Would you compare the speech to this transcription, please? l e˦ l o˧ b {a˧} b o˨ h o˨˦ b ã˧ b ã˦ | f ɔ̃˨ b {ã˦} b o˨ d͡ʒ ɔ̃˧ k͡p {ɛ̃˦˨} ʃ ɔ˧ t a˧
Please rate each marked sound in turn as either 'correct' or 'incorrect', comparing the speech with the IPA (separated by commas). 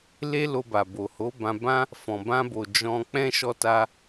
incorrect, incorrect, incorrect